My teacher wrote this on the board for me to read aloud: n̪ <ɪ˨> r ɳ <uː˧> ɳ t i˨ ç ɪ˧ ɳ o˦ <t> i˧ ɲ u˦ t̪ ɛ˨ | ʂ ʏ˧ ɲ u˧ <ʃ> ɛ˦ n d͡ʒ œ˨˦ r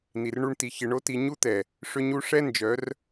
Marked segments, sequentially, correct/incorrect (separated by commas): incorrect, incorrect, correct, incorrect